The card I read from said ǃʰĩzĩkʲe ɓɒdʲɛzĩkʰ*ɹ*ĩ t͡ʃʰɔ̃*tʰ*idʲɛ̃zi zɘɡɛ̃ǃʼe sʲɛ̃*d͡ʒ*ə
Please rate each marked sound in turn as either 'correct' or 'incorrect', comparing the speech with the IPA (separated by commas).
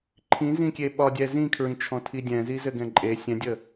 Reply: correct, correct, incorrect